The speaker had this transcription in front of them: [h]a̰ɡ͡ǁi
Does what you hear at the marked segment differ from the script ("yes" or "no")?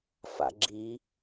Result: yes